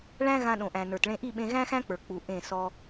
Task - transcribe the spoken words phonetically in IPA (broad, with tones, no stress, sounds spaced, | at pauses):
ɭ æ̃˦ ɣ ã˧ ɗ õ˨ ʔ æ̃˨ n ə˞˨ t ɭ ẽ˧ ʔ i˦˨ ɓ ẽ˧ ɣ æ̃˦ x æ̃˦ k͡p ə˞˨ k͡p u˨ ʔ ẽ˦˨ s ɔ˦